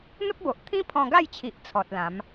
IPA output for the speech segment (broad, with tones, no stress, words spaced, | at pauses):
n̪ə˦p̚bo˨ʔt̪ʰĩ˦pʰɔ̃˧ ɡa˥˧jt͡ɕʰi˨ʔ t͡sʰɔ˨t̚lã˨˦m